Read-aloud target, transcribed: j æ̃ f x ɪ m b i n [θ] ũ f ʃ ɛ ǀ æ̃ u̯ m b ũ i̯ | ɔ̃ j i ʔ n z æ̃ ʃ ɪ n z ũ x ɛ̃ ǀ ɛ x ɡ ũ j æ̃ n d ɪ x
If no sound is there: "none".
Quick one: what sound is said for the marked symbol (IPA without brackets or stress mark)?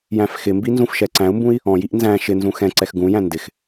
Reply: z